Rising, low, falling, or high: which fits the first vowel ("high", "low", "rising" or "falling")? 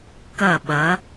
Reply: falling